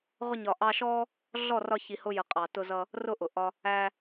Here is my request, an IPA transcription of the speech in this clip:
ʁʊ˧ɲɒ˨ʔɑ˧ʃɔ˦ | ɮɔ˦˨rɒ˧ çi˨hʊ˧jə˨ qʼɑ˨tʊ˧zʌ˧ | rʊ˦˨ʔʊ˨ʔɒ˧ | æ˧

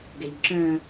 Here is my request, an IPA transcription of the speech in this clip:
ɡɛʎǁœ̃

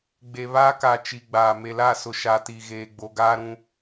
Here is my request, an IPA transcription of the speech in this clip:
ɡ͡be˨ βaː˦ka˨ t͡ʃi˨ɡ͡baː˨ me˨la˦˨sʊ˨ ʃa˨ti˨ɣeː˨ ɡ͡bo˨ɡaː˦ɾũ˦

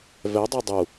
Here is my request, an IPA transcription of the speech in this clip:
vɛdˤɛ dˤu

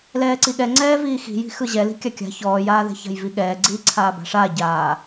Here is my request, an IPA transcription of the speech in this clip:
lɛːǀiɠɛ ŋ͡ǀɛːviːxi̤ ji̤xɯʑɛ li̤kʲakʲa̤ çɔːjaːðɛ̤ça̤j viɠɛːɡ͡ǀiː ǀʰaːba̤ʂaː ɟaː

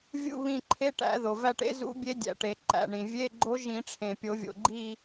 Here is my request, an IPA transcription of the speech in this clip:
vʲṵ˦˨ βĩ˦˨ǃʰe˧˥˧ʈæ̰˨˩˦ ðo˩væ˦˨ʈḛ˧˥zṵ˧˥ bʲe˧˥ dʲæ̰˩ʈe˩ ǃæ̰˩ɳĩ˩ vʲe˧˥˧ɡ͡ǃo˧˥ʒ ĩ˨˩˦ ʈ͡ʂʰẽ˩pʲo˨˩˦vʲo̰˩ɡ͡ǃi˦˨

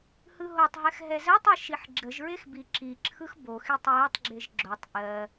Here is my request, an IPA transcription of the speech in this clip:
hɯɦotˤɦɛx ɦɛzɜtˤɯ ʃiħɡ͡ǁəʒɹex biǁiǁʰɯx boxitˤ jɜtˤɡ͡ǁeʒ ɡ͡ǁotˤ ʔɜ

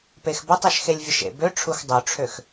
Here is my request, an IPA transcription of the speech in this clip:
pexbɐtˤeʃ xelʲvʲəʃḛbø ʈ͡ʂʰuxdˤøʈ͡ʂʰøx

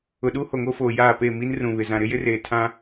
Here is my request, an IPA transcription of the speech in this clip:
ʊ˨ɗu˦ ho˨ŋo˦foː˨ jaː˦˨ pe˦˨mi˦n rũ˨βɪ˨ zã˨ɾɪ˦jɪ˦ reː˨ tʰã˦

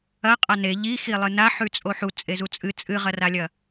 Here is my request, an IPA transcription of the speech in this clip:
ɐ qʼane ʎixi lˠɨnaħʉ t͡sʼoħu t͡sʼezut͡sʼɨ t͡sʼɨʁɐralʲɐ

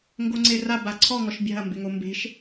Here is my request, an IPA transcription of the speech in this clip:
ŋɡoŋ͡ǀera baǀʰɔ ŋɔʃbʲa̤ɐ̯ mbɪŋombe̤ʃ

